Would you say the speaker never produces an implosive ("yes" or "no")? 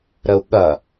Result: no